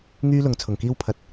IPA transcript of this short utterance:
ŋyː˥lʊ˨˧ŋt͡sʰʊ˨˩ŋkiː˥w pʰɐ˧t̚

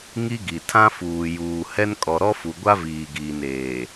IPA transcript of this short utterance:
ŋi˦ɡi˨ tʰã˦fuː˨ juː˨ hɛ˦n kʼɔ˨ɾɔ˦fu˨ ɡʷa˦viː˨ɡiː˨n eː˨

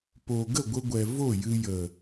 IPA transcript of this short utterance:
po˨ ɡə˦˨ɡʷə˧ɡʷɛ˨ vo˦˨jɨ˧ jə˨

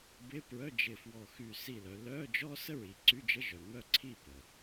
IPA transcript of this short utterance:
bɪ˧˥˧pɹœ˧˥˧d͡ʒɪ˧˩fwɔ˧˩ xy˧˩ si˧˩lœ˩˧lœ˧˥˧ d͡ʒɔ˥ sə˥ɹi˩˧ǀy˧˥˧d͡ʒə˧˥˧ ʒœ˩ mœ˧˩ǀʰi˧˩ pə˩

